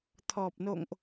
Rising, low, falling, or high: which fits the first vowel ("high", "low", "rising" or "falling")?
low